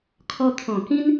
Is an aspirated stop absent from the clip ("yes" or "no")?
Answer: no